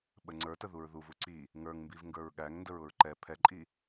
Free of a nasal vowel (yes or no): yes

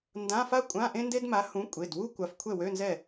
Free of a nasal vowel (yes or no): no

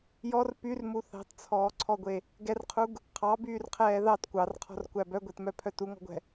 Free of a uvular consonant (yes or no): no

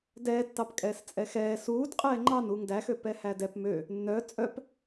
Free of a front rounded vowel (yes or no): no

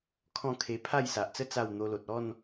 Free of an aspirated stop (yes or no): no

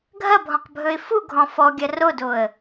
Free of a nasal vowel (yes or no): no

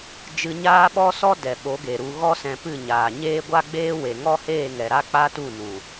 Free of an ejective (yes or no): yes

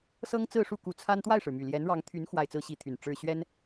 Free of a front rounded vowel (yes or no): no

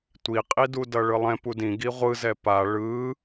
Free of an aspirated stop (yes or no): yes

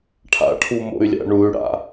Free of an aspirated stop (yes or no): no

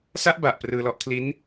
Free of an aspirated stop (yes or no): no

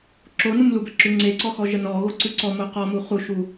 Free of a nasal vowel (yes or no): yes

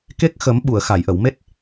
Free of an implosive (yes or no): no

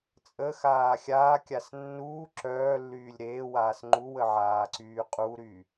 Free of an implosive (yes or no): yes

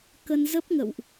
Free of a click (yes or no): yes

